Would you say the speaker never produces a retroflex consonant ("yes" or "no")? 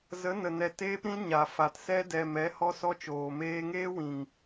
yes